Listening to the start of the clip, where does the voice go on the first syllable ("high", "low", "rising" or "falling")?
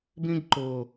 high